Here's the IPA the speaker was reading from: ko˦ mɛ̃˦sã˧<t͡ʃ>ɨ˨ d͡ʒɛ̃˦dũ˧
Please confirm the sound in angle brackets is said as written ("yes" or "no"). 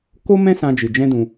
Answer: no